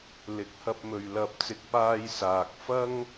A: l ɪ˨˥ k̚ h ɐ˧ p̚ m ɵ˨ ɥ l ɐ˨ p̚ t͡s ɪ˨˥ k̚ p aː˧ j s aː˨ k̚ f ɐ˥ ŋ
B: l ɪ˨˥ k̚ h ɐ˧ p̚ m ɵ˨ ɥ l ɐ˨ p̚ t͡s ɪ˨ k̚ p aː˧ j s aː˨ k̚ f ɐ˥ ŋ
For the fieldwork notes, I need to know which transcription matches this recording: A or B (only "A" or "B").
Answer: B